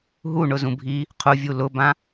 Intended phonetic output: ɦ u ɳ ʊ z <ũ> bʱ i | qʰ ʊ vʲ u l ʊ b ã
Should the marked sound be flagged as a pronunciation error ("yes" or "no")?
no